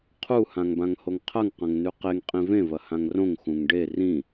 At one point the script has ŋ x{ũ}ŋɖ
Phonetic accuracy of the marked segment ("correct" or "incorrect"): correct